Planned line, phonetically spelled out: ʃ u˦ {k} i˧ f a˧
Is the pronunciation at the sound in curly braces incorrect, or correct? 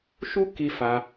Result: correct